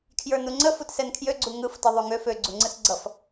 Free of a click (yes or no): no